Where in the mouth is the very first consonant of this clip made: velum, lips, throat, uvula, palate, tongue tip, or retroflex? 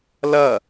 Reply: tongue tip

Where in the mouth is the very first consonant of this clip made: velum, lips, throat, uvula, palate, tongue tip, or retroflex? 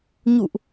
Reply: palate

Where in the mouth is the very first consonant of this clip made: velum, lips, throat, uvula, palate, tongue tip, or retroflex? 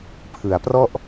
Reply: lips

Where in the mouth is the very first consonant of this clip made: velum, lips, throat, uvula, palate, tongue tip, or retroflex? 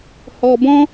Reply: throat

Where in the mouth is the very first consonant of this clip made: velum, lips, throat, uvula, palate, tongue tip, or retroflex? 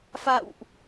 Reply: lips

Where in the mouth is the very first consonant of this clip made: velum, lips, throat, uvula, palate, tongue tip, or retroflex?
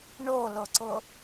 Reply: retroflex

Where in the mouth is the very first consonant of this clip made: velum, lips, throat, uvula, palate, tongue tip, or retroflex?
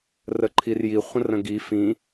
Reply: tongue tip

